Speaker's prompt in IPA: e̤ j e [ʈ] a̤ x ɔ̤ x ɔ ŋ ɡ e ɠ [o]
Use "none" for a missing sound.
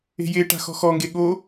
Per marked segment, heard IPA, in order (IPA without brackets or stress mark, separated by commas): ʈ, o